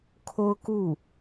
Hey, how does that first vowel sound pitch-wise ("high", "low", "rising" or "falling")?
high